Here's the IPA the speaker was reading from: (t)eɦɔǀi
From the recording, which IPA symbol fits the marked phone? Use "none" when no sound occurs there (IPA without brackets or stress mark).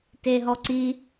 t